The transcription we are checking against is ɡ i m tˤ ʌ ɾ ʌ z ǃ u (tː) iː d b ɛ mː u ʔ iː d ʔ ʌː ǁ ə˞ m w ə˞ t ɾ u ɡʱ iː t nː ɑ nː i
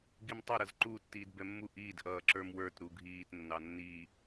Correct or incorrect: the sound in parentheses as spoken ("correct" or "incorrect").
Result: correct